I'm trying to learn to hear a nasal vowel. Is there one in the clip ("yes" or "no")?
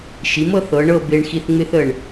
no